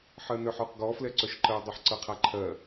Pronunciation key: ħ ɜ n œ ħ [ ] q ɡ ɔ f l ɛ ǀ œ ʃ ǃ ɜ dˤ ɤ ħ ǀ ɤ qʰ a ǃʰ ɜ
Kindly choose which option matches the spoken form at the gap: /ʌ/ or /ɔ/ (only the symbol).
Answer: ɔ